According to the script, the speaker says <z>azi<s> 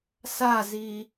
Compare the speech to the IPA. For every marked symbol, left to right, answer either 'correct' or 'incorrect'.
incorrect: s, incorrect: none

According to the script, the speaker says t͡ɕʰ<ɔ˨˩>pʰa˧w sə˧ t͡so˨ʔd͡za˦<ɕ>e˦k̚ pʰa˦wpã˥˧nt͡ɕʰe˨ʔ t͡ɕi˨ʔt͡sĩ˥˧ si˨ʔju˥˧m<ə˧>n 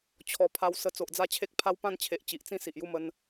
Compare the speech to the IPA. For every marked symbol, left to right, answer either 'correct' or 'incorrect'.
correct, incorrect: t͡ɕʰ, correct

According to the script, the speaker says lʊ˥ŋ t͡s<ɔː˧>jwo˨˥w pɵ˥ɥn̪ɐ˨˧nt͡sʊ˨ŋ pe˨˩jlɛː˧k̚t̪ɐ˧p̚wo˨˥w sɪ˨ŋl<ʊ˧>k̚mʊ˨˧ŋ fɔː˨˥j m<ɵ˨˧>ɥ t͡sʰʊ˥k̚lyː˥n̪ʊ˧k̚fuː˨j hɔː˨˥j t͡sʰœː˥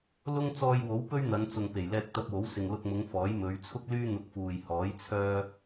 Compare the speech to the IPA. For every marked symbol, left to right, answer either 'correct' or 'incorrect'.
correct, correct, correct

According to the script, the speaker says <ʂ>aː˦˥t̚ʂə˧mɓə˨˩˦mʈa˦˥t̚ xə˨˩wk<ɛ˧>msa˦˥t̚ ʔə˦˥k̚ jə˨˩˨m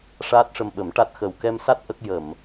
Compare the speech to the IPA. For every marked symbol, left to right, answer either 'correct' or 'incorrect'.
correct, correct

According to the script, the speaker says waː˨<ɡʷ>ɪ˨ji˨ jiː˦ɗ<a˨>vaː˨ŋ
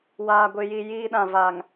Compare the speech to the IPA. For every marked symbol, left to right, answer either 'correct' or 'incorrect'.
correct, incorrect: ã˨

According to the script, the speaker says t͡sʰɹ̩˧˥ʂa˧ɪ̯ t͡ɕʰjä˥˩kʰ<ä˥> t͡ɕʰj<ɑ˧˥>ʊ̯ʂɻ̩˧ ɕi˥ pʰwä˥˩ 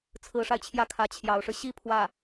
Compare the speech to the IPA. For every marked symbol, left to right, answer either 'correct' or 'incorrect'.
incorrect: ä˧˥, correct

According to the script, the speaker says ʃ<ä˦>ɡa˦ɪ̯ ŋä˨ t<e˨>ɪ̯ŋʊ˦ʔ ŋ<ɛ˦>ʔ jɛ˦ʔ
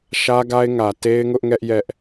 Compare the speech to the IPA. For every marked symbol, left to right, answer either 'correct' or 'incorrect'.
correct, incorrect: e˦, correct

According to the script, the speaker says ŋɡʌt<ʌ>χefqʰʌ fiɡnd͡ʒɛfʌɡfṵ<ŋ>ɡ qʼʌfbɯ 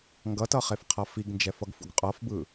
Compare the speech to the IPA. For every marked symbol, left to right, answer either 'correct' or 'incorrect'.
correct, incorrect: none

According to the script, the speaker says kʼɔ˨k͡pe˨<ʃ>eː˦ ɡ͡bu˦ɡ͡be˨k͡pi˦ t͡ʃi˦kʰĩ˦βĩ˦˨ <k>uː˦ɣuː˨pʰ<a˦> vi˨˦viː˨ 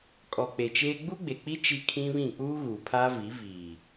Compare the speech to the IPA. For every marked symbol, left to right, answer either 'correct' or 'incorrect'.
incorrect: t͡ʃ, incorrect: k͡p, incorrect: aː˦

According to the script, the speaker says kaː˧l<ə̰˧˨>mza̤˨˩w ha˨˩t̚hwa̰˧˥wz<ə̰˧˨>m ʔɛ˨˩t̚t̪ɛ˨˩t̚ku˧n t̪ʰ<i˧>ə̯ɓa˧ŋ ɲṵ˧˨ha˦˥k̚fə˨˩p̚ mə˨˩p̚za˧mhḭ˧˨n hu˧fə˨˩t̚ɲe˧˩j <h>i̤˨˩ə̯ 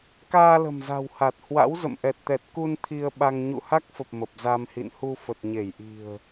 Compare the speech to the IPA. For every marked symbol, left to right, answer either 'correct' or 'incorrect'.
incorrect: ə̤˨˩, correct, correct, incorrect: ʔ

